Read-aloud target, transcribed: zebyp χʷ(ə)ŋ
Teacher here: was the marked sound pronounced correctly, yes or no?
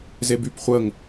yes